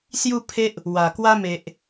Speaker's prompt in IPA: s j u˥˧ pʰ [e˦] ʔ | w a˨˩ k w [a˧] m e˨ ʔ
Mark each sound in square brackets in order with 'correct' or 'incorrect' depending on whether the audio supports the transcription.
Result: correct, incorrect: a˦

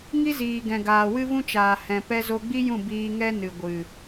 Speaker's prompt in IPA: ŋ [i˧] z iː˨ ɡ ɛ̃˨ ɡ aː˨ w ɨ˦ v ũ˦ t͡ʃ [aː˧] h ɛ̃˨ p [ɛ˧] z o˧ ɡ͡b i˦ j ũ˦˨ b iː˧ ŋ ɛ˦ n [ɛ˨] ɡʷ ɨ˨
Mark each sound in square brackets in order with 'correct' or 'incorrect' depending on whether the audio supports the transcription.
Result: incorrect: i˦, incorrect: aː˨, correct, incorrect: ɨ˨

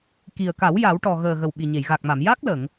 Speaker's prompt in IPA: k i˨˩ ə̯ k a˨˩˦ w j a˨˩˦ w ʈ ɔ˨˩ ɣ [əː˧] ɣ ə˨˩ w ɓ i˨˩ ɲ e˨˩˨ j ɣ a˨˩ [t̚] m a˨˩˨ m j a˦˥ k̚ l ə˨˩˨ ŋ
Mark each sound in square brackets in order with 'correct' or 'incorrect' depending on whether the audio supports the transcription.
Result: incorrect: əː˨˩, incorrect: k̚

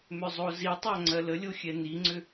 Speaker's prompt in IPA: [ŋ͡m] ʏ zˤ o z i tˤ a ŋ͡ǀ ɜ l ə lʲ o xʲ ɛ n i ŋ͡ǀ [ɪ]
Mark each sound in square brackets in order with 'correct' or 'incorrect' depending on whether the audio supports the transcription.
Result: incorrect: m, incorrect: ʏ

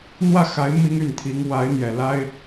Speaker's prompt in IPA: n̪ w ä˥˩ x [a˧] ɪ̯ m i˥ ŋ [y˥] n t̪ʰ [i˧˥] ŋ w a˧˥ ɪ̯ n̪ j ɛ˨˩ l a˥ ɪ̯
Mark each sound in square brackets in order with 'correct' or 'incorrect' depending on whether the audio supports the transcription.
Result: incorrect: a˧˥, incorrect: y˥˩, correct

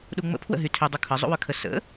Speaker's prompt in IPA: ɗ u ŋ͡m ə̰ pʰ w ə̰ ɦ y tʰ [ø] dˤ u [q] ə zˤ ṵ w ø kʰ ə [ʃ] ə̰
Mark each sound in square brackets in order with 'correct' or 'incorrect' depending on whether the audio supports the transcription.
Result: correct, incorrect: kʰ, incorrect: s

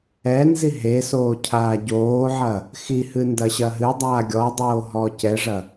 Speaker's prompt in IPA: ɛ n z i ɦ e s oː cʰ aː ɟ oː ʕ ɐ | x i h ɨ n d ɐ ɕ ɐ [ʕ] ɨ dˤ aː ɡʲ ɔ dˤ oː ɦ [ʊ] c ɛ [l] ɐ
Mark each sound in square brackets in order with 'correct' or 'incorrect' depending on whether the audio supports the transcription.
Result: incorrect: ɦ, incorrect: ɔ, incorrect: ʐ

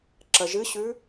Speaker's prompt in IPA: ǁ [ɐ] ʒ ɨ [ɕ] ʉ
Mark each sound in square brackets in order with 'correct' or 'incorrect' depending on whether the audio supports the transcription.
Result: correct, correct

